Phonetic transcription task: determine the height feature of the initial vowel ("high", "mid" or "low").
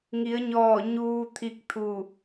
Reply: high